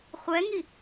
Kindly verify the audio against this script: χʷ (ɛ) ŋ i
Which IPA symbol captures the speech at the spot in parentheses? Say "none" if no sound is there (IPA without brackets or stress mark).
ɛ